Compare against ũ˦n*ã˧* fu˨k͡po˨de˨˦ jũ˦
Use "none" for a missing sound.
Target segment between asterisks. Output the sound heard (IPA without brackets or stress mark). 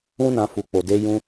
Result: ã˧